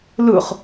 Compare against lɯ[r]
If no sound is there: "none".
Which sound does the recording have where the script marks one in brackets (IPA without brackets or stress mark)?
χ